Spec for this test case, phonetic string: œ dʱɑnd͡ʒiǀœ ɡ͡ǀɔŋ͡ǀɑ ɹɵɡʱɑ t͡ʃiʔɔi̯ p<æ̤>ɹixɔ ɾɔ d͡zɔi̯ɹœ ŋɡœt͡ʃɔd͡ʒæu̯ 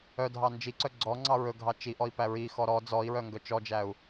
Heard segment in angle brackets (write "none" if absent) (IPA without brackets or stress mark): æ